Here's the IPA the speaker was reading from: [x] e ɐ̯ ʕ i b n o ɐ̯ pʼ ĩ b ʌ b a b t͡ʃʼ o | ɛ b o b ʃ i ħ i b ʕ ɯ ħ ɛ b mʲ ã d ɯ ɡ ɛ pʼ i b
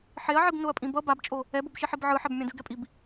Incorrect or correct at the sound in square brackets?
incorrect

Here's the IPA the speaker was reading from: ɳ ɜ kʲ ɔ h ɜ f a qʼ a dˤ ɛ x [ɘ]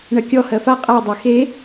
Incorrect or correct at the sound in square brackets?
incorrect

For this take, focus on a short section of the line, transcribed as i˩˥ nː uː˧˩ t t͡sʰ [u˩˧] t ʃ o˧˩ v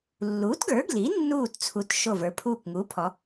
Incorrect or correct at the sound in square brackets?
correct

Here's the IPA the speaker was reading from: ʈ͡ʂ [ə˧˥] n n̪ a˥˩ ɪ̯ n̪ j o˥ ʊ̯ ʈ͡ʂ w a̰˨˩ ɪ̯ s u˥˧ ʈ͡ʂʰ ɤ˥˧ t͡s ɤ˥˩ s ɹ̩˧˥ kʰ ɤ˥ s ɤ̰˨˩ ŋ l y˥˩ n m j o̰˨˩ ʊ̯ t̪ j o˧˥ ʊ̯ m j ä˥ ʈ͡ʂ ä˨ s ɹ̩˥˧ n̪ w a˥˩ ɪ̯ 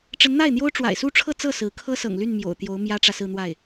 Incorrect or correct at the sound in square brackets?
correct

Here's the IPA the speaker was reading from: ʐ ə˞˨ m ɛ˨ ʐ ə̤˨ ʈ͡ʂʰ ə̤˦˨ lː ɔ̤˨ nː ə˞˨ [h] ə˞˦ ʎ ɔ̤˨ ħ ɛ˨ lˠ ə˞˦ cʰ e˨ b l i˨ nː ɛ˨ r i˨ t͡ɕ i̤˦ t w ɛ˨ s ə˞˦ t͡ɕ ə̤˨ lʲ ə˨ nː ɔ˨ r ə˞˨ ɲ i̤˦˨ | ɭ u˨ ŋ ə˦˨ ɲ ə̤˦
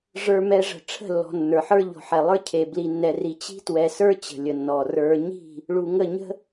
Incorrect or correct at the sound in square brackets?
incorrect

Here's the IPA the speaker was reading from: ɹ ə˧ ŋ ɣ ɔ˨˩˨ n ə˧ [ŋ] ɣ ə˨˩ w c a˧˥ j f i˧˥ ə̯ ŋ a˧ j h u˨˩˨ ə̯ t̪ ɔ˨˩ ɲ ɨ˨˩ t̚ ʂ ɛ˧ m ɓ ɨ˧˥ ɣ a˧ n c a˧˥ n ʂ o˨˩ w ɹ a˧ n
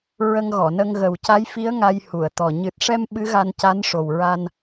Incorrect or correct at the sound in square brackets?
correct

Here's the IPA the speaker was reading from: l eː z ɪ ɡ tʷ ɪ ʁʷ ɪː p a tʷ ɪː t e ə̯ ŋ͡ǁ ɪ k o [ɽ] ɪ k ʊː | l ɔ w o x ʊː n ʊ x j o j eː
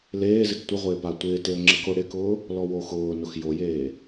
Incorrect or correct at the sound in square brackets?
correct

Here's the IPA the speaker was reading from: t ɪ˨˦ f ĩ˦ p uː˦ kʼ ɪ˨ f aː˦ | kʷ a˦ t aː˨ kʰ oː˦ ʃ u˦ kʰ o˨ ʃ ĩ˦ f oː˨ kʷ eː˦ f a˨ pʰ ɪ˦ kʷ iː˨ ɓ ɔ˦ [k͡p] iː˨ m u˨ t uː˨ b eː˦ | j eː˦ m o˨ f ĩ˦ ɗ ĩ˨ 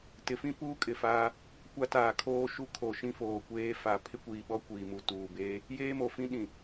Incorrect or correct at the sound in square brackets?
incorrect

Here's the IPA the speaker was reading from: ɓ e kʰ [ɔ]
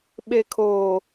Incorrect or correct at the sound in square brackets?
incorrect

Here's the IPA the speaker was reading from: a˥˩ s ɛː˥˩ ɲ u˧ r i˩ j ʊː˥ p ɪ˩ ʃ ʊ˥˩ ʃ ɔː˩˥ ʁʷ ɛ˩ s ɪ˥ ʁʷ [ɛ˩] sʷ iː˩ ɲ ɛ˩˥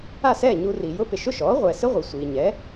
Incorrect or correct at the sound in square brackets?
incorrect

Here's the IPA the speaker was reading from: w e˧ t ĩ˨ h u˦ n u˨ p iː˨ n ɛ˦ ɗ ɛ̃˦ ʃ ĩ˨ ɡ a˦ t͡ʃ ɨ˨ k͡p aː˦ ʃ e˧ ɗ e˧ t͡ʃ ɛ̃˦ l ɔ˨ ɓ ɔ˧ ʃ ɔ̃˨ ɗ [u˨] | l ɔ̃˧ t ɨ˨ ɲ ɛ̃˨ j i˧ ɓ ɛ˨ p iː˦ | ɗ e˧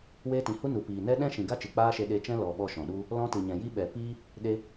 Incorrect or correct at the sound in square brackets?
incorrect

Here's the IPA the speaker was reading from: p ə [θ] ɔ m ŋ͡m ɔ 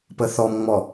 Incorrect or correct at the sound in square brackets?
correct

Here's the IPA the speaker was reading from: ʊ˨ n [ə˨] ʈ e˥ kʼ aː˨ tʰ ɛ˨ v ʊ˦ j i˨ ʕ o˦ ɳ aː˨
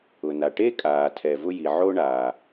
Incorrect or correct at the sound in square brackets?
incorrect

